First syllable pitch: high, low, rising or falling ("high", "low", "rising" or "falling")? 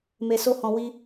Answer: low